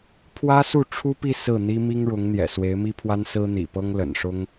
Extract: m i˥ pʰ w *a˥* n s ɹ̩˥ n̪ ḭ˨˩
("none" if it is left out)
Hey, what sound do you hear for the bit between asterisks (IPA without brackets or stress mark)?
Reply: a˥